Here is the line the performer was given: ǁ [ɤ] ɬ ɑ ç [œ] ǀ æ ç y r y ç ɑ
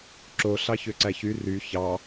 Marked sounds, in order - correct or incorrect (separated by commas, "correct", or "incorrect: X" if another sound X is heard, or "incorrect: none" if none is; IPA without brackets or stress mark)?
incorrect: o, incorrect: ø